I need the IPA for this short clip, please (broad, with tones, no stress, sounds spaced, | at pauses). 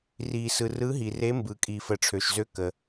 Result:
r iː˨ s ɯ˨ r ɯ˧˥ ɦ i˨ r e˧˥ m b ɯː˨ kʼ iː˨ f ə˨ ʈ͡ʂʰ ø˨ ʃ z ø˧˥ k ə˨